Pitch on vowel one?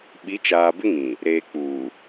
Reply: rising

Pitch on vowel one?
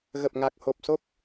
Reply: low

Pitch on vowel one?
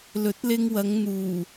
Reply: rising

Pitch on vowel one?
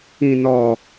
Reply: low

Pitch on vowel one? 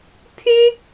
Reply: high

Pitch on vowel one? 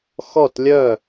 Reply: falling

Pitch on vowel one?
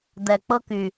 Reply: low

